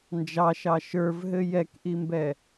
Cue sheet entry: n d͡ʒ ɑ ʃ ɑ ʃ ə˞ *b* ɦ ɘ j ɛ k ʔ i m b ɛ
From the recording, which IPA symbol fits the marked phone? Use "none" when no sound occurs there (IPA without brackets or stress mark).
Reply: v